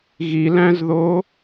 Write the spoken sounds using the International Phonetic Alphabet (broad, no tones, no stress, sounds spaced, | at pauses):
ɣ i l æ̃ z ð o